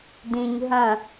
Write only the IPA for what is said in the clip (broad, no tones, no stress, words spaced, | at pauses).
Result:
dĩɲ ɦɐ̃